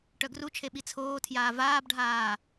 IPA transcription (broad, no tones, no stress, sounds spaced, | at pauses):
ʈ œ ɡ r u t͡ʃʰ e ɓ i t͡sʰ oː tʰ j aː v aː b ɖʱ aː